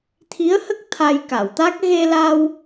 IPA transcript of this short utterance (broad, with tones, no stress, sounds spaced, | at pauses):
t̪ʰ i˧˥ ə̯ h ə˦˥ k̚ t̪ʰ a˧ j k a˨˩˨ w t̪ a˦˥ k̚ ɣ e˧ l a˧ w